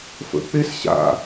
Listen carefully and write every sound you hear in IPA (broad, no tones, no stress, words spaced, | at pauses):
fə̰ k͡pes ɕa̰